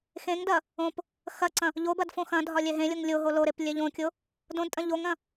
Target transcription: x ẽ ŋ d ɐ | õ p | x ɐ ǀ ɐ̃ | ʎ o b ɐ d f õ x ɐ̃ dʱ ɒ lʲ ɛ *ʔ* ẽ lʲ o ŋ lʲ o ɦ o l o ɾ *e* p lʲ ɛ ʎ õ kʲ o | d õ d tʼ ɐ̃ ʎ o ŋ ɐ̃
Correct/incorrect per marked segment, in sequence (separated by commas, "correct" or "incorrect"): incorrect, correct